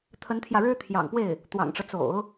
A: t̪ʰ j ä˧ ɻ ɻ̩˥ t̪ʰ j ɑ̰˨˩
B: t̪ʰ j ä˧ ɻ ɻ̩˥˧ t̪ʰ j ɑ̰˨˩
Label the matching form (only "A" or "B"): A